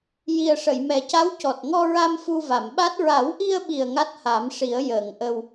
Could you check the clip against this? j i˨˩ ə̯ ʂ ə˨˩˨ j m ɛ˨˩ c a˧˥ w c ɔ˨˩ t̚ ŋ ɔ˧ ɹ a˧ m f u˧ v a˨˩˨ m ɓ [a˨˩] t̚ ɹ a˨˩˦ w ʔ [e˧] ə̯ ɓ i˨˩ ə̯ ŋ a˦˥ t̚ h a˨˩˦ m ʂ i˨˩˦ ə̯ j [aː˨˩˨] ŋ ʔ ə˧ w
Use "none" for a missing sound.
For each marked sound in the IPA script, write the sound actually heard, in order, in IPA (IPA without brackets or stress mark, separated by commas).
a˦˥, i˧, əː˨˩˨